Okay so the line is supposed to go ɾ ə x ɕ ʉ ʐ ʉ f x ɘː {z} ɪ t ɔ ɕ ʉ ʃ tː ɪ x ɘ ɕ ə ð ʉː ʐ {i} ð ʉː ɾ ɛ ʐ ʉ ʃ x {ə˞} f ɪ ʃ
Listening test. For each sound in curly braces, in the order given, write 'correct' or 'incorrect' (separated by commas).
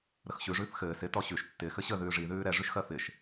incorrect, correct, incorrect